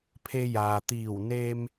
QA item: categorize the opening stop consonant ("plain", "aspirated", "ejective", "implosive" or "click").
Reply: aspirated